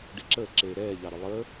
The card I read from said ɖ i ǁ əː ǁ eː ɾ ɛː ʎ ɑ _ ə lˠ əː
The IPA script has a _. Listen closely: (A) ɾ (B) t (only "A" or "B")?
A